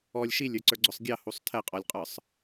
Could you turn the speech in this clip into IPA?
ɔ lʲ ʃ i lʲ ə˞ ǀ ə˞ ɡ͡ǀ ʊ sˤ ɡʲ ɑ h u sˤ tʰ ɛ qʼ ɔ lʲ qʼ ə˞ sˤ

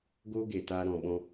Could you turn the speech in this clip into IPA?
ɡ oː˦ ɡ e˨ t aː˧ ɾ ɔ̃˨ ɓ ɔ̃˧

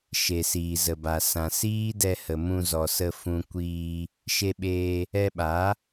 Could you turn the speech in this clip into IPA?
ʃ e˨ s iː˨ z ə˨ b a˨ s ã˨ s iː˦ d ɛ˧ h ə˨ m ũ˧ z ɔ˨ s ə˧ f ũ˧ kʷ iː˧ | ʃ e˧ ɓ eː˧ | ɛ˧ ɓ a˨˦

